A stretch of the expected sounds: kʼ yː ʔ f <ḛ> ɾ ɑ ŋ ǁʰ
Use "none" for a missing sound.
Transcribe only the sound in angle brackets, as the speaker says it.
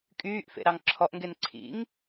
ḛ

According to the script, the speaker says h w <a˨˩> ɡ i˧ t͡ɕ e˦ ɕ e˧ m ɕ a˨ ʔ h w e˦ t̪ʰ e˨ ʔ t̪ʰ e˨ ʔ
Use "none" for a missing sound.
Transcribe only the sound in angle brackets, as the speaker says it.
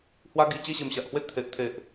a˦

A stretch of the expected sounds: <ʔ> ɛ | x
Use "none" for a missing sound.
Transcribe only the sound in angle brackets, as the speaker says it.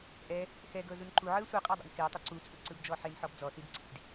ʔ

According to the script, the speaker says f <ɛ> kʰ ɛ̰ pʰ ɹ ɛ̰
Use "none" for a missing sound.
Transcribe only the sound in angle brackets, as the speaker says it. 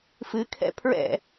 ɨ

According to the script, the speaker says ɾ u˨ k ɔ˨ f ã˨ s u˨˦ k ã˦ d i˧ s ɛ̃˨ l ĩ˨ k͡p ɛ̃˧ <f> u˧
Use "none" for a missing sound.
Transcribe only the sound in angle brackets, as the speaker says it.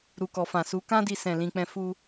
f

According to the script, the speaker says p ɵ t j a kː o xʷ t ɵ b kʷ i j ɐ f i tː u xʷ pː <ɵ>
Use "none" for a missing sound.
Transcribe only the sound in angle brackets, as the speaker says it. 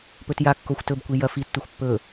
ɵ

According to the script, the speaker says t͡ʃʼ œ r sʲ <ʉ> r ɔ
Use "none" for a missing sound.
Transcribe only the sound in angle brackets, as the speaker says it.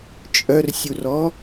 u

